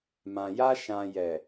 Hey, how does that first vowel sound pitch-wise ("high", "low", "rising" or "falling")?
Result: low